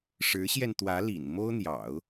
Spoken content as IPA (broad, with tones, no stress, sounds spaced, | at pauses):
ʂ ɻ̩˧˥ ɕ j ɛ˧ n t̪ w ä˧˥ l ḭ˨˩ n m o˥ ʊ̯ n̪ j ɑ̰˨˩˦ ʊ̯